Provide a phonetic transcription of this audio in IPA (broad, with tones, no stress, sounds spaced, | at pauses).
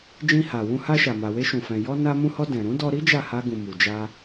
d͡ʒ ĩ˧ h a˨ w ũ˧ h a˧ ʃ a˨ m a˨ w e˧ ʃ ũ˨ f ɛ̃˨ j ɔ˧ n a˧ m ũ˧ h ɔ˧ d ɛ̃˨ ɾ ũ˨˦ d ɔ˧ ɾ i˦ d͡ʒ a˦˨ h a˧ ɡ ũ˨ m u˨ d͡ʒ a˧